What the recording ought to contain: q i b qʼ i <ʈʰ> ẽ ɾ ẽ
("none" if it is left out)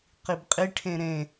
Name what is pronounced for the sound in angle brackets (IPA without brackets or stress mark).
ʈʰ